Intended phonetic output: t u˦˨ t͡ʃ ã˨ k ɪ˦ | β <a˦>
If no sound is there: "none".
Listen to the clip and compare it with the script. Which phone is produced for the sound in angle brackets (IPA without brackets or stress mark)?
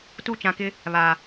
a˨